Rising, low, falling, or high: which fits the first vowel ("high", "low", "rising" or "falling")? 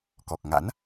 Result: low